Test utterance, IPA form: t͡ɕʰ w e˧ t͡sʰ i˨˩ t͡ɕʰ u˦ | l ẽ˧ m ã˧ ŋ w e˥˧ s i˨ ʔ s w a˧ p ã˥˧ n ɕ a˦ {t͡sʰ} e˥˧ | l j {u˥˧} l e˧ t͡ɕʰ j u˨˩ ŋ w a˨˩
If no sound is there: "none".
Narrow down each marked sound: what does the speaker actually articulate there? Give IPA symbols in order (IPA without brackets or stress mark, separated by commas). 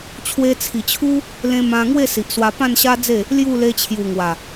d͡z, u˥˧